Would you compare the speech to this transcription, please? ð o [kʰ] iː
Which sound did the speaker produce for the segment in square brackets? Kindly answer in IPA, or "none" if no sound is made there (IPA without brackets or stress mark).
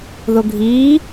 ɡʱ